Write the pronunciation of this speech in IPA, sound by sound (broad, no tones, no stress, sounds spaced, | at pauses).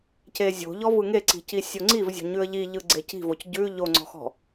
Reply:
c e zʲ o̤ ʎ ɔ v ɯ ŋ e ǀ i̤ c i sʲ o ŋ͡ǀ i v zʲ ɔ̤ ɲ ʉ ə̯ ʎ i ʎ ɯ ɡ͡ǀ e c i̤ v o c ɟ ʉ ʎ o ŋ͡ǀ ɔ̤ x ɔ̤